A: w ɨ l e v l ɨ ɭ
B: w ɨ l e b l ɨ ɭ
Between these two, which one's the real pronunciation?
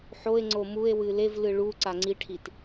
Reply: A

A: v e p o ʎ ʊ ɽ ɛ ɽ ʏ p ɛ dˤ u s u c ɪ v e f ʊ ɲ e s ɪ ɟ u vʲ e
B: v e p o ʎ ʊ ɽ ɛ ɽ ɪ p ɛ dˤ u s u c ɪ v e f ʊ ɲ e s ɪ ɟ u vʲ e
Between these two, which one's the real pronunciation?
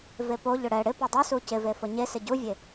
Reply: B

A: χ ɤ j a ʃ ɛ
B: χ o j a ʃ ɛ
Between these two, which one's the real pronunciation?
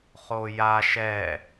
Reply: B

